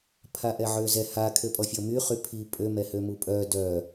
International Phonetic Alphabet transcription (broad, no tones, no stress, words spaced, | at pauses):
pʰaʔɛʕøzɛ ha kʰøpʼɔfʲɔmy χypʰi pʼø mɛhømupʼœ dœ